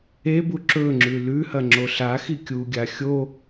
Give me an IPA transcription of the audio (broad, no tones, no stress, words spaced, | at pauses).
ebu ǁɵŋ͡ǁʉ lʉhɐŋ͡ǁo ɬaxi kʲuɡʲa xʲo